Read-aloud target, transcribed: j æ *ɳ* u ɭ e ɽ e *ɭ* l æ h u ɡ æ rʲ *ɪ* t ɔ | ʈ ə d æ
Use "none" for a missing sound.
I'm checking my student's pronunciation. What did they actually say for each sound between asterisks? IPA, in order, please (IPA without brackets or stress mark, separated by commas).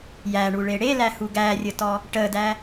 ɳ, none, ə